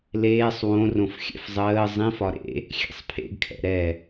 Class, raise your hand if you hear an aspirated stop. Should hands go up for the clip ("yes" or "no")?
yes